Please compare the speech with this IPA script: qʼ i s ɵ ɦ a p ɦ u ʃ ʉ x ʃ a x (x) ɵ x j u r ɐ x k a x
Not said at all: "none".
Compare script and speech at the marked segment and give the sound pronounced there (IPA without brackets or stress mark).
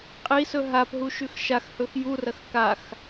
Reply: h